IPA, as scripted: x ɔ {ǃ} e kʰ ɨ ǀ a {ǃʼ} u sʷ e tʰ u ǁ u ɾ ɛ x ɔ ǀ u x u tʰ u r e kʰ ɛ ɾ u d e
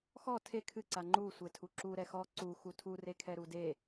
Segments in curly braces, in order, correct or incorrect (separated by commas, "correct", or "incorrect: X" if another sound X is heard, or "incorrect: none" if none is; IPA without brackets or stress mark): incorrect: tʰ, incorrect: ŋ͡ǃ